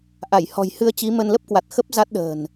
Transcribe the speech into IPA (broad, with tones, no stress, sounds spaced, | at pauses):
ʔ a˧˩ j h ɔ̤˨˩ j h ɨ˧ ə̯ t͡ɕ i˨˦ m ə˧ n l ə˦˥ p̚ k w a˨˩ t̚ x ə˦˥ p̚ z a˦˥ t̚ ɗ ə̤ː˨˩ n